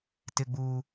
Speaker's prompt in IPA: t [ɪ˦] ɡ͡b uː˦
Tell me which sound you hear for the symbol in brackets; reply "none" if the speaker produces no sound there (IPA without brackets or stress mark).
ɪ˦